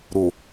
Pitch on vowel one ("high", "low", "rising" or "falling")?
low